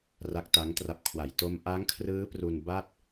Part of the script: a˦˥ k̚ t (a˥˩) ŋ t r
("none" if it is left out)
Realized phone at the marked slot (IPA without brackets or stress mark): a˦˥